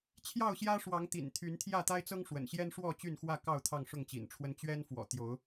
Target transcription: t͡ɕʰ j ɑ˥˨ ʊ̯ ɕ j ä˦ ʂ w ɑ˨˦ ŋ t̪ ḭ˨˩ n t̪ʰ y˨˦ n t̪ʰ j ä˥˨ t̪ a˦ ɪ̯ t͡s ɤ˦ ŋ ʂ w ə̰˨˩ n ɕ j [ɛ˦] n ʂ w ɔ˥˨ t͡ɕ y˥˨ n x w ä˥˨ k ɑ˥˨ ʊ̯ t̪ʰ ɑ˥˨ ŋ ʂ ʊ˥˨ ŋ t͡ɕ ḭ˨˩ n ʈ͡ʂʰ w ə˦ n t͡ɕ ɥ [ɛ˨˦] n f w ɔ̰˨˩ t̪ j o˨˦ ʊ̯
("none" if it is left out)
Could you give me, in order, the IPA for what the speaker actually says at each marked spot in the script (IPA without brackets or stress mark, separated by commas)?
ɛ˦, ɛ˦